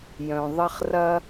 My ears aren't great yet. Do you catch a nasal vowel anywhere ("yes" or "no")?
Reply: yes